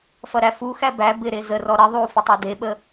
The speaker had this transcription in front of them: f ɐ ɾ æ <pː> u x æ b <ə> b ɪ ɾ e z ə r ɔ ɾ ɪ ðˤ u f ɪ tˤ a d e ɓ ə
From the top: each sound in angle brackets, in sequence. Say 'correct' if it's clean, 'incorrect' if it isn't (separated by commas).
incorrect, incorrect